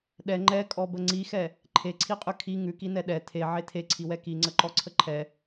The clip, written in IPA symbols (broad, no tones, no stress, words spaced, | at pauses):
ɗɛ ŋ͡ǃɛkʼɔbə ŋ͡ǀixɛ | ǃʰeǀʰiqʼʉ kʰi ŋʉkinɛ ɗɛ tʰeʕe tʰeǀʰiwɛ kiŋ͡ǀəǃɔǀʰə ǃʰɛ